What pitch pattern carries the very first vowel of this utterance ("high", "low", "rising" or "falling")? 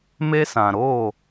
high